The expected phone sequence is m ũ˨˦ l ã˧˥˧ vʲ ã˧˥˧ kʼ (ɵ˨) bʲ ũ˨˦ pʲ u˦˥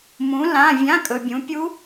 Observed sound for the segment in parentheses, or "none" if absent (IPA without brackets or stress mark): ɵ˨